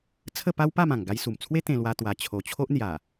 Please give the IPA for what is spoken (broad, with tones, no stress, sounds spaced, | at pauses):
t͡sʰ ə˥˧ p a˦ w p a˥˧ m ã˨˩ ŋ ɡ a˧ j s u˨˩ m t͡sʰ w e˦ t̪ ẽ˧ l w a˧ t̪ w a˨˩ t͡ɕʰ o˨˩ t͡ɕʰ o˦ ʔ n̪ j a˨˩